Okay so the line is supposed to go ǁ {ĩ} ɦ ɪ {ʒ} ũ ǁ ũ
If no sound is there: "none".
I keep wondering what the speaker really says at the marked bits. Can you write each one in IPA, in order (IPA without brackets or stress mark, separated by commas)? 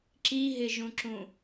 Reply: i, ʒ